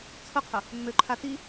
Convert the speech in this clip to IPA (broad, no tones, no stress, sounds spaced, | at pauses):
t͡sʰ ʊ qʰ ʊ | mː ø ǃʰ a t i